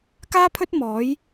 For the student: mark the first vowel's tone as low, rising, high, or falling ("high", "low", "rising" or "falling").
high